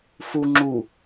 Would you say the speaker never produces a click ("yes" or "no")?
no